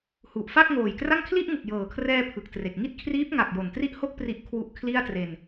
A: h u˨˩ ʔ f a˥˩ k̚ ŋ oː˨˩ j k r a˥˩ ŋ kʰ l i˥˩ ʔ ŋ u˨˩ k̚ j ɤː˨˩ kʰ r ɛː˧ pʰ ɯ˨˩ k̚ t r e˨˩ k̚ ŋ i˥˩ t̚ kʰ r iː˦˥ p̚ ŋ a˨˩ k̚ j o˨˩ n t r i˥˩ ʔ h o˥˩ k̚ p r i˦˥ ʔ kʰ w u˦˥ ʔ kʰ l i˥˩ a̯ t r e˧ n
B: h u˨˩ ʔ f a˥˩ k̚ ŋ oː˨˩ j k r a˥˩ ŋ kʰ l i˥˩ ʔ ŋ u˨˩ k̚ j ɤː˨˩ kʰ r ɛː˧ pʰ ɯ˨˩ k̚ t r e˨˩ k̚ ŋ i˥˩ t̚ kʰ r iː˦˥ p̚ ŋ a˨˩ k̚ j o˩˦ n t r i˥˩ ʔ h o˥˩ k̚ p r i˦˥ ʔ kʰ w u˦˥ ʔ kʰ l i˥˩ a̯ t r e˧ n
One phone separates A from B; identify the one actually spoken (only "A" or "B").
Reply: A